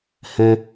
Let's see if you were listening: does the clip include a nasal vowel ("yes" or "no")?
yes